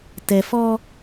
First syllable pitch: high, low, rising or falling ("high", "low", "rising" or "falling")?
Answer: low